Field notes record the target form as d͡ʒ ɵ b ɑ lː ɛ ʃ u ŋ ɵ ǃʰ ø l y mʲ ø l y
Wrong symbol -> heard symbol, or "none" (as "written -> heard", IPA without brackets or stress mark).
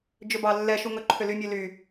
none